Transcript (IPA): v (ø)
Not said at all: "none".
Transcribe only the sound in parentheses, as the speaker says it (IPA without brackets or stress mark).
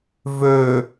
ø